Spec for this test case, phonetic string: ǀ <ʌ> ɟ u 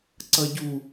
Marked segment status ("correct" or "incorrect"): correct